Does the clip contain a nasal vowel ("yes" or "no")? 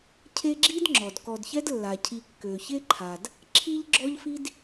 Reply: no